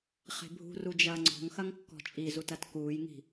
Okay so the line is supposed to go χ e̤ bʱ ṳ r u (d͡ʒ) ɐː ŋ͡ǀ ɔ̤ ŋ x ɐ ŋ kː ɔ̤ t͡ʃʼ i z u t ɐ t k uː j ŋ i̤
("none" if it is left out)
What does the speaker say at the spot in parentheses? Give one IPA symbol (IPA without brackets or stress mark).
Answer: d͡ʒ